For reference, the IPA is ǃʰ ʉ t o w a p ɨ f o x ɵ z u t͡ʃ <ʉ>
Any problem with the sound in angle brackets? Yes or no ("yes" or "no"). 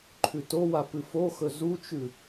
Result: no